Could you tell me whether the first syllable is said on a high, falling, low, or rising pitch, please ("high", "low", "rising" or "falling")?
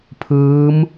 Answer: rising